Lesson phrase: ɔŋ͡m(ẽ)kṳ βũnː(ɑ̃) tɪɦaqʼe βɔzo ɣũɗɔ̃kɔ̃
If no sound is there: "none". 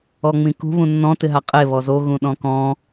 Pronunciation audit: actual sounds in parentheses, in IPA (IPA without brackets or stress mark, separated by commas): ĩ, ɔ̃